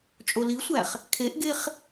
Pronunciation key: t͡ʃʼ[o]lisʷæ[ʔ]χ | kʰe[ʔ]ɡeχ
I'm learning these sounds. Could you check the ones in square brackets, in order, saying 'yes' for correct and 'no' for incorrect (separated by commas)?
yes, no, yes